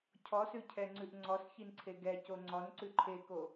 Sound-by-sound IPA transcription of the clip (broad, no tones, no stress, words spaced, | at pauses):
cʰɔsʉcʰɛŋ͡ǀʉʔ ŋ͡ǀɔsçinǀʰe ɡɛco ŋ͡ǀɔn ǀʉǃʰeko